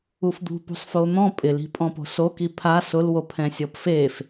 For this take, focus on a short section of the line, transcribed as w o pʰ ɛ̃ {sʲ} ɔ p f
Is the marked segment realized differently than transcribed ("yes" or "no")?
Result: no